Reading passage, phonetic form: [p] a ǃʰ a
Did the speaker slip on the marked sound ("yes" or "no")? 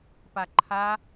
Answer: no